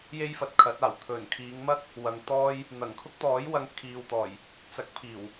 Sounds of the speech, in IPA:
j e˥ j f ɐ˨ t̚ kʰ ɐ˨˥ t̚ aː˨˩ w t̪ʰ ɵ˨˩ n kʰ iː˨˧ ŋ m ɐ˥ k̚ | w ɐ˨ ŋ t̪ ɔː˥ j | n̪ ɐ˨˩ ŋ kʰ ʊ˥ k̚ t̪ ɔː˨˥ j w ɐ˧ ŋ kʰ iː˨ w t̪ ɔː˨˩ j | t͡s ɐ˨˥ k̚ pʰ iː˨˩ w

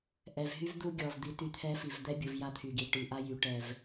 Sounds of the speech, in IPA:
ʔ ɛ˨ v ɦ y˦ v d̪ u˦ ɡʲ ɔ˨ v d̪ i˨˦ t y˨ t̪ʰ ɛ˦ f i˨ v d̪ ɛ˦ bʲ u˨ v j a˦ t̪ʰ y˨ ɡ i˨ ʈ i˨ ʔ a˦ j y˨ ʈ ɛ˨ v

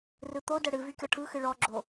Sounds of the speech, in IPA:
r ɯ t̪ o d ə ɽ ɨ v y kʲ ɔ ʈʰ ɯ x ɨ ɭ ɔ ɡ͡ǁ o

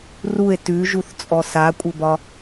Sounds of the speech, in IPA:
r u e̯ t ʉ ʒ u θ t͡sʼ ɔ s a kʷʼ ɘ b ɒ

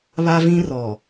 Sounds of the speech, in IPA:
β a˦ v ĩ˦ r ɔ˨

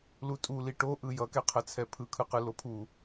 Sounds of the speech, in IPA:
l u tʼ u l i ʈ o ʔ ɯ j ʌ k ɛ qʰ ɛ t͡sʰ ɛ pʰ ɯ kʰ ɯ q ɯ l o pʰ u

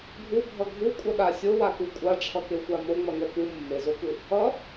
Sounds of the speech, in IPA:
ɡʱ u bʱ ʌ ɡʱ u kʷʼ ʌ ɗ a sʲ o w a k u kʷʼ a ʈ͡ʂʰ ʌ k e xʷ a m o ŋ͡m ʌ ŋ ɛ p u mː e z o k ɯ | ʌ

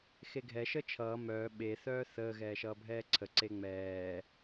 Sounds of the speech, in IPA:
x e ɡʱ ɛ ʃ ə t͡ʃʰ ʌː m œː ɓ e θ œː θ əː ɣ ɛː ʃ ʌː bʱ ɛː ǀʰ ə ǀ e ŋ͡m ɛː

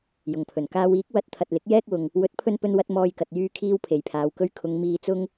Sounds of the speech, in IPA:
j ʊ˨˩ ŋ pʰ ɵ˨˩ n k aː˧ w iː˨˥ k̚ w ɐ˨˥ t̚ t̪ʰ ɐ˨ t̚ l ɪ˨˥ k̚ j ɛː˥ k̚ w ʊ˨ ŋ | w ɵ˨˥ t̚ pʰ ɵ˧ n p ɵ˧ n w ɐ˧ t̚ m ɔː˧ j k ɐ˨ t̚ j yː˧ kʰ iː˧ w pʰ e˨ j pʰ aː˨˧ w k ɵ˧ ɥ kʰ ʊ˨˧ ŋ m iː˧ t͡s ʊ˥ ŋ

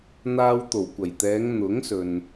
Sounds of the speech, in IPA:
n̪ aː˧ w t̪ o˨˩ w kʷ ɐ˨˩ j t̪ ɛː˨˧ ŋ n̪ ʊ˨˥ ŋ s ɵ˨ n

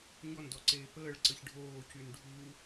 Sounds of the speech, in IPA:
ɲ ɔ n d ɔ ǀ eː p əː ɭ ǀ ə ç ɖʱ oː c y n ɖʱ u

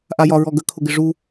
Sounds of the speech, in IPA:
ʔ a j ɒ ɹ ɔ ɡ ə kʰ ʊ ɡ ɪ ʐ u

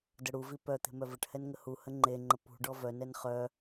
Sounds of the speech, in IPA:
d ə ɽ u v i p œ t̪ e̤ m œ v ə ʈ h ɛ n ŋ ə h u h ə ŋ͡ǃ e ŋ͡ǃ ə p ṳ ɖ ɔ v œ n ɛ n χ œ

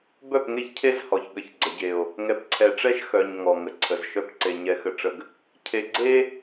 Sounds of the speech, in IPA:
b œ˦˨ p ŋ e˦ ç cʰ e˦ z h ɔ˨ ç ɠ ə˨ ç ɡ͡ǀ ə˨ ɟ e˨ o̯ | ŋ ɛ˨ p ǀʰ ɛ˨ ʈ͡ʂ ɛ˦ ʃ x œ˨ ɲ ŋ ɔ˨ ŋ ə˨ ǀʰ ə˨ z ʃ œ˦ p ǀ e˨ ɲ ɛ˨ x ə˨ ʈ͡ʂ ə˨ ɡ | cʰ e˨ ɡ͡ǀ e˦

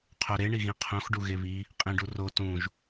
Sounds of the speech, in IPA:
qʰ o ɾ e ɳ i ɣ ĩ qʰ õ x ɖ u ɣ e β i | qʼ ĩ ɖ u r o t ũ ʒ

